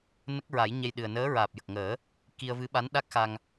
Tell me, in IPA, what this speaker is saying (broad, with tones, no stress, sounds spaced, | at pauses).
n ə˦˥ k̚ ɹ a˨˩˦ j ɲ ɛ˧ j ɗ ɨ˨˩ ə̯ n əː˧˥ ɹ aː˨˩ p̚ j ə˨˩ k̚ ŋ əː˨˩˦ | k i˧ ə̯ v ɨ˧˥ ɓ a˧˥ n ɗ a˦˥ k̚ x a˧ ŋ